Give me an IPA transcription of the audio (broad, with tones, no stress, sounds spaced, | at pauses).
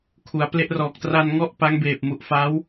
kʰ u˩˦ a̯ p l e˦˥ ʔ r ɔː˨˩ k̚ t r a˧ n ŋ ɔ˥˩ ʔ p a˦˥ ŋ b eː˨˩ p̚ m u˨˩ ʔ f a˦˥ w